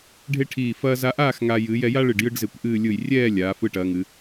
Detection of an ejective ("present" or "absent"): absent